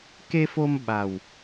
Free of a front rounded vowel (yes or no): yes